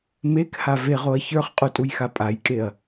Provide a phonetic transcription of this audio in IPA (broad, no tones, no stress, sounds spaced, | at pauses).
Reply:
m e k h a v e ʁ o ɐ̯ ç ə˞ χ qʼ u tʼ u j x a pʼ a j kʼ e ɐ̯